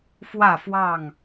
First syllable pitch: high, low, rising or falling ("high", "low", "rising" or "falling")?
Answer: falling